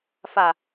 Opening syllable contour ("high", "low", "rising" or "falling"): low